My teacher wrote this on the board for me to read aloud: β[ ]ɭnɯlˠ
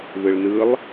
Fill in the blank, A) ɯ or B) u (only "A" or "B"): A